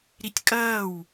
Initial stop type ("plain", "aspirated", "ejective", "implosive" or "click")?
plain